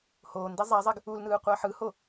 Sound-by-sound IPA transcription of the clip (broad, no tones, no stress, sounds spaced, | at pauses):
h oː n d i zˤ a zˤ ɛ ɡ | u l n ɯː qʷ ʌː ħ ɯ h o